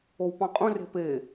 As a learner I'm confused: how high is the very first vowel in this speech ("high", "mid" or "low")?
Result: mid